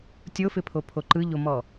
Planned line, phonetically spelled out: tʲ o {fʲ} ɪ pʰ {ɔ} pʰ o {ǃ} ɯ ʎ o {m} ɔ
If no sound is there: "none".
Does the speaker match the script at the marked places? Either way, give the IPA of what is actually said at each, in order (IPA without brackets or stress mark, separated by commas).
f, o, ǃ, m